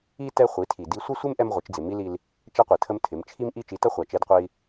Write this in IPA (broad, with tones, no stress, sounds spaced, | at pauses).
i˦ t ɛ˦ χʷ i˨˦ tʰ i˨ d i˧ sʷ ə˦ sʷ ɪ˦ m ʔ ɛ˦ m ʁʷ ɪ˨˦ t͡ʃ d͡z ɪ˨ m i˦ l i˧ l | t͡ʃ ɛ˦ qʷ e˨ tʰ ə˦ m tʰ ɪ˨˦ m t͡ʃʰ i˦ m ʔ i˦ t͡ʃ i˨˦ t ʌ˦ χʷ a˨ t͡ʃ e˦ d qʷ e˦ i̯